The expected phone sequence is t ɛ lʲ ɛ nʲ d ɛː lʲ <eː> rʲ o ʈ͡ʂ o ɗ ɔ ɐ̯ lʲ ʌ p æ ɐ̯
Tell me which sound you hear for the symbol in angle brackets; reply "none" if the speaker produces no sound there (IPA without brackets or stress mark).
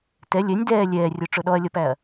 ɛː